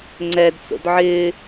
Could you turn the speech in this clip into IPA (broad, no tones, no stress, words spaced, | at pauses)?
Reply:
ŋ͡ǀɛdt͡so̰d ʕɪː